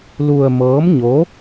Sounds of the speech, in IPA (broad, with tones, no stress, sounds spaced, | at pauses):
l u˧ ə̯ m ɤː˧˥ m ɲ o˧˥